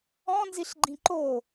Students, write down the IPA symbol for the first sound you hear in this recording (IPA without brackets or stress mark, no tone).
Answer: ɔ̃